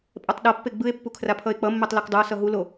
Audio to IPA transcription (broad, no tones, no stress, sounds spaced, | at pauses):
pʼ ɛ tˤ ɗ ʌ pː e ɡ͡b ɯ e̯ pː u kʰ r a pʰ ʌ e̯ k͡p ʌ mː e tˤ l o k dˤ ɯ o̯ s ʌ ɦ u l o